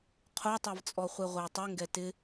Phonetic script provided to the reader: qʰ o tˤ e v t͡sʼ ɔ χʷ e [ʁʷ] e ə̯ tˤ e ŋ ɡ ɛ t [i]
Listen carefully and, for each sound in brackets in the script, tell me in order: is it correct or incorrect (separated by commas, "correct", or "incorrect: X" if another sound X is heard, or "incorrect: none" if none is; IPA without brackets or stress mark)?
correct, incorrect: ɪ